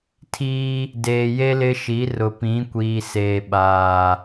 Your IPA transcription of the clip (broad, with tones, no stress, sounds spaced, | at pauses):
tʰ iː˦ | d eː˨ j e˦ l ɪ˦ ʃ i˨˦ r ʊ˨ p ĩ˨˦ kʷ iː˨ s eː˨ ɓ aː˨